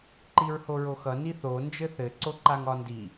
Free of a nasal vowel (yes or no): yes